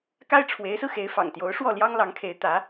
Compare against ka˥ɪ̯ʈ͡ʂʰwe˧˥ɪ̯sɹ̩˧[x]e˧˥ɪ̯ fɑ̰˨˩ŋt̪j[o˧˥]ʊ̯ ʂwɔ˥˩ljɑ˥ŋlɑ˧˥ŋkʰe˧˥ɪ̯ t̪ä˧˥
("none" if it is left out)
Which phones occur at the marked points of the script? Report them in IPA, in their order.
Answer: x, o˧˥

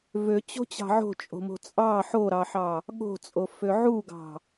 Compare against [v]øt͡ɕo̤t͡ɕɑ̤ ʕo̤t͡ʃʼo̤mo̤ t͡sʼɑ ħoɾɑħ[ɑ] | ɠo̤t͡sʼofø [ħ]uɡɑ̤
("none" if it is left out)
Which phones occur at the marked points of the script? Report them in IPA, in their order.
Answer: v, ɑ, ʕ

